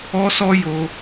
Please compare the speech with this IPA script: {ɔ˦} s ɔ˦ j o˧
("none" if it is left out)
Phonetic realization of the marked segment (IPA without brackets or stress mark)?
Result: ɔ˦